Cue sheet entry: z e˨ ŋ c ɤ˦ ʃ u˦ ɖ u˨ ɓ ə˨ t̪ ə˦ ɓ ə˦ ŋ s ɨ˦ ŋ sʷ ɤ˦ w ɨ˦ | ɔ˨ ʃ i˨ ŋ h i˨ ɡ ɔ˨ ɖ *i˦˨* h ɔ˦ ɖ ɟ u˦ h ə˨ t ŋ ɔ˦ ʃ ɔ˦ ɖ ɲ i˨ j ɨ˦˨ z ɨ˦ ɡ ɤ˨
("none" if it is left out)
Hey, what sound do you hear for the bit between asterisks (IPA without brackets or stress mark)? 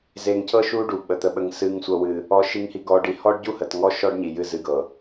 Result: i˨